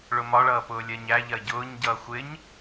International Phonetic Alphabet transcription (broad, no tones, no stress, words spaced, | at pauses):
ɭʊmɒɭʌː pʊːlʲɜɲæʎɜ ɟʊːɲɟʌː xʷɪɲ